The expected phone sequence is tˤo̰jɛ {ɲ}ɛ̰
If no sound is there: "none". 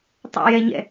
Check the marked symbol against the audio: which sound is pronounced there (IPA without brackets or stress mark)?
ɲ